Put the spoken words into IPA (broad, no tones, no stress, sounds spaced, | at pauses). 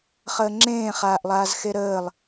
χ əː ŋ͡ǁ ẽː χ aː ʔ lˠ aː z x e ɾ əː lˠ